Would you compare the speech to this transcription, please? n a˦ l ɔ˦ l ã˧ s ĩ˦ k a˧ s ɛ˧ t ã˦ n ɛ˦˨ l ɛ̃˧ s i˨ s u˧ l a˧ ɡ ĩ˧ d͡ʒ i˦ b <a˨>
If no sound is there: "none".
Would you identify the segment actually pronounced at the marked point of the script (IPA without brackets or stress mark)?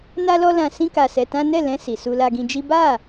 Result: a˦˨